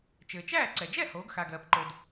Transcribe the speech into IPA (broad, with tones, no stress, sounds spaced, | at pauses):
t͡ʃ ɘː˩ t͡ʃ æː˥˩ ǀ ɛ˩ d͡ʒ ɛ˥˩ h oː˩˥ ɡ x a˩ ɡ ɜː˩ p ǃ o˩ d